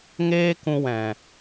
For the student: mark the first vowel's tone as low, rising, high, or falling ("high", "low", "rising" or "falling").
high